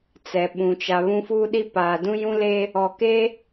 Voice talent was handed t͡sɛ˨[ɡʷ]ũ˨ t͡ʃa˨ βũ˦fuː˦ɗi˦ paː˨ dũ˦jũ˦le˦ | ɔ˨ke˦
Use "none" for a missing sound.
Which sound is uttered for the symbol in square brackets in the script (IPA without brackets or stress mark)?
ɓ